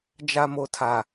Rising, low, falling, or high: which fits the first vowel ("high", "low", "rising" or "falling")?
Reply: high